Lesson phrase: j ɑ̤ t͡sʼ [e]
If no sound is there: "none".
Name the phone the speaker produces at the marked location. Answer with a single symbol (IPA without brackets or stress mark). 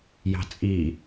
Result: i